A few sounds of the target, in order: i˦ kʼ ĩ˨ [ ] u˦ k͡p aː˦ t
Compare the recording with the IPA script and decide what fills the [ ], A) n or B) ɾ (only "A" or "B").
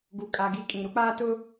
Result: B